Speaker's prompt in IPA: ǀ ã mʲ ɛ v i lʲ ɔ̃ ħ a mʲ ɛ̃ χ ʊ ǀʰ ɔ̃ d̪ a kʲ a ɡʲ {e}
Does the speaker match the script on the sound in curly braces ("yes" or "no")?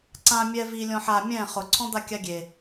yes